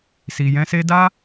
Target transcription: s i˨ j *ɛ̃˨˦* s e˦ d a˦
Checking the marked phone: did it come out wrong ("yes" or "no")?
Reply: no